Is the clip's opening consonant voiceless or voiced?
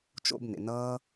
voiceless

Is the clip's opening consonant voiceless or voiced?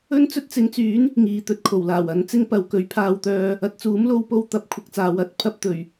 voiced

